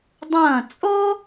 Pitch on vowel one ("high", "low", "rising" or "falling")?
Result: falling